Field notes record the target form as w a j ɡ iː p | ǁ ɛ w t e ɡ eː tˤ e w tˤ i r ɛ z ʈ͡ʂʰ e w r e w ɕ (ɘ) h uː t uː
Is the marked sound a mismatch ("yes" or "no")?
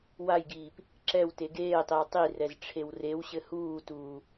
no